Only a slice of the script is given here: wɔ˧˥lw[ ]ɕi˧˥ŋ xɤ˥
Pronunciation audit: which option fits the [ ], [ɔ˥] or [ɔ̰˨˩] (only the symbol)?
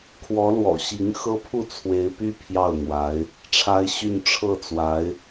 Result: ɔ̰˨˩